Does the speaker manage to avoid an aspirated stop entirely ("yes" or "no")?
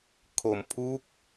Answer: no